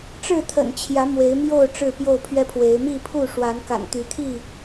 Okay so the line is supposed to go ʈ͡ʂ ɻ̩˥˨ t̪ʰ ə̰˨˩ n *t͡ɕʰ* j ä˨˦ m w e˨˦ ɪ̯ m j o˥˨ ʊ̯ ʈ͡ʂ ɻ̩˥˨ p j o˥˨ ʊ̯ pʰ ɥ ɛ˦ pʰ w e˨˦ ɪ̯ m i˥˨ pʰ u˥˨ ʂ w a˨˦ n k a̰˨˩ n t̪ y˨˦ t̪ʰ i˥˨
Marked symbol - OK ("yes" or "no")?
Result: yes